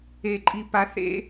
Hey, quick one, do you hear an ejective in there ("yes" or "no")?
yes